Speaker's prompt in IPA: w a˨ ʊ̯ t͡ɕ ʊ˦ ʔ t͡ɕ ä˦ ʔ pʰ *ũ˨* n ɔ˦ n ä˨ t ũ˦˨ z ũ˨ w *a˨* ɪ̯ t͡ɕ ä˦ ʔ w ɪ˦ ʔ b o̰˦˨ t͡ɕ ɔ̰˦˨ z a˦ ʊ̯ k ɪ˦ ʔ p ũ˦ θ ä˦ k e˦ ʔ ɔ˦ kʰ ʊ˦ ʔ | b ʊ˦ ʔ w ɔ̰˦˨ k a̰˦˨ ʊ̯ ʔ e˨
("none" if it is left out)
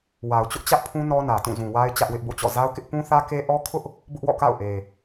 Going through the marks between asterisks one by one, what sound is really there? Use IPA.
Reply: ũ˦, a˦

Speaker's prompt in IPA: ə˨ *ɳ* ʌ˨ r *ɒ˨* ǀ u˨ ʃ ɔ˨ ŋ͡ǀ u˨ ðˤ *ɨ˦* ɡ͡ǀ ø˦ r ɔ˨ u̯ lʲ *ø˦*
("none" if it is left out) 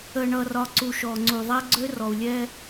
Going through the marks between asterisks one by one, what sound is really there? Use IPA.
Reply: ɳ, ɒ˨, ɛ˦, ɛ˦

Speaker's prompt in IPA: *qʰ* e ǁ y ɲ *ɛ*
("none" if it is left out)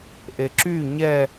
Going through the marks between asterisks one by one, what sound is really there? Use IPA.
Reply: ʔ, ɛ

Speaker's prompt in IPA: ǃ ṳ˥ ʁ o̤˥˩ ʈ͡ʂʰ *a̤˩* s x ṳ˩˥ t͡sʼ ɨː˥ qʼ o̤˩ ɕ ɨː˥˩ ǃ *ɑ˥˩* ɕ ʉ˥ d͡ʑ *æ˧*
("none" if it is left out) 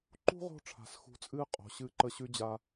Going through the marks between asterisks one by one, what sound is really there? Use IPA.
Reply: a̤˩, ə˥˩, a˧

